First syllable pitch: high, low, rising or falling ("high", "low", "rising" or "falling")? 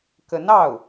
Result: rising